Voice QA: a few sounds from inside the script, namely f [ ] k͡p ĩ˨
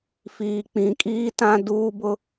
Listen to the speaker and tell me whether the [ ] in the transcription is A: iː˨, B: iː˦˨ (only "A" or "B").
A